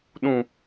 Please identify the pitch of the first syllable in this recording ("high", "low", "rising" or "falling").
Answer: low